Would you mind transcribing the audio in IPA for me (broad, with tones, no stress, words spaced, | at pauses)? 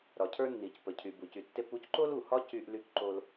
ɾɒ˩cʰə˞˧nːi˩c pə˩cʰy˩ bu˩cy˩tːe˧pu˥c ǃo˥lu˩ hɒ˥ cy˧ʔ ly˧kǃo˧l